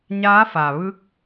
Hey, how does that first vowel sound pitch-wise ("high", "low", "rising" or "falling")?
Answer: rising